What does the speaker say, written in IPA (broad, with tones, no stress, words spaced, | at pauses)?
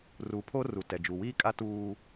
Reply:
ru˨˦pʰo˦ru˨ tɛ˨d͡ʒu˨wiː˦kʼa˦ tuː˦